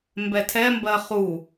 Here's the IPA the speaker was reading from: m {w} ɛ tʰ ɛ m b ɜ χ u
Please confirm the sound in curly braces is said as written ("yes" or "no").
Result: no